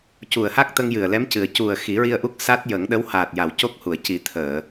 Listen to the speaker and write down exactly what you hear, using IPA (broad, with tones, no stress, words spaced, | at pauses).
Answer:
cu˨˩ə̯ha˦˥k̚t̪ə˧ŋ jɨ˨˩ə̯lɛ˧˥mcɨ˨˩ə̯ cu˨˩ə̯ xi˨˩˦ɹi˧ə̯ʔu˦˥k̚ sa˦˥t̚jə˨˩˦ŋɗə˧˥w haː˨˩t̚ja˨˩˨w co˦˥k̚hu˨˩˨ə̯ ci˨˩˦t̪ʰəː˨˩˨